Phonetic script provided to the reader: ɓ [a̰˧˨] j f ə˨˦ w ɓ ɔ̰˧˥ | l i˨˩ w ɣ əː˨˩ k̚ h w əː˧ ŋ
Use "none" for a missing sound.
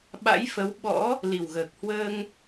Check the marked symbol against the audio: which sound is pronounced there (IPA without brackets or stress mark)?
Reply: a̰˧˥